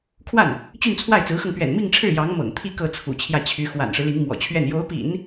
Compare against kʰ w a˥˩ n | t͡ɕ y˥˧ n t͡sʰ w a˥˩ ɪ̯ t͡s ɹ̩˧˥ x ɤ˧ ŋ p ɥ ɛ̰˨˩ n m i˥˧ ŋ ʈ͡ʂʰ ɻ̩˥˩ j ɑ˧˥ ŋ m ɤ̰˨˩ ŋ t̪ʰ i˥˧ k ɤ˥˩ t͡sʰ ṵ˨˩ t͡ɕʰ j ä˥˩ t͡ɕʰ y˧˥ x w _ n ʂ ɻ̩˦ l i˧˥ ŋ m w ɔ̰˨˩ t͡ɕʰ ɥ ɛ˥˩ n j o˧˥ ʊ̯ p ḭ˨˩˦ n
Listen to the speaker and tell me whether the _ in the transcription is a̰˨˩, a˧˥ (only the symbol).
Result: a̰˨˩